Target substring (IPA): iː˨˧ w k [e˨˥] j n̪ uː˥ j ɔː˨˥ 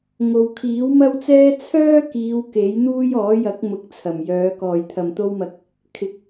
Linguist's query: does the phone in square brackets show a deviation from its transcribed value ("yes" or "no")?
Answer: no